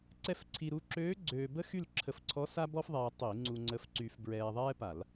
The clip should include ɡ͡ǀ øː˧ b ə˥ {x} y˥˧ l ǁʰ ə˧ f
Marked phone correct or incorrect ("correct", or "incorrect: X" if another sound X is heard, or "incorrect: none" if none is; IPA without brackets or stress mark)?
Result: correct